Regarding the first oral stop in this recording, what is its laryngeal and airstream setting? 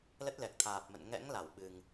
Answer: plain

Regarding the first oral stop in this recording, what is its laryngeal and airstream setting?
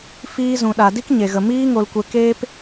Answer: implosive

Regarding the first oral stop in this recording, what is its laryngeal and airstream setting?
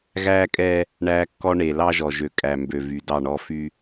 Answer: ejective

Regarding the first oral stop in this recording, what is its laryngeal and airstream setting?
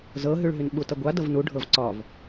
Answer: implosive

